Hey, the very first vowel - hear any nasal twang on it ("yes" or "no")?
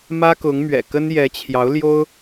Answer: no